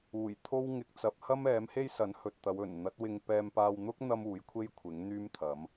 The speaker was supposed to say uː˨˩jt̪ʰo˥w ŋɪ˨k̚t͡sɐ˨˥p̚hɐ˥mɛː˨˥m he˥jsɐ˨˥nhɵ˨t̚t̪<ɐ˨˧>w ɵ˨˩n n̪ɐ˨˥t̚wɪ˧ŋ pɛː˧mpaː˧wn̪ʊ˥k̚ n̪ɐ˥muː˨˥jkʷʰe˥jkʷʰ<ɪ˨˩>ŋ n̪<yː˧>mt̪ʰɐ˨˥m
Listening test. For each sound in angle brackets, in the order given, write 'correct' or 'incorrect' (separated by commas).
correct, incorrect, incorrect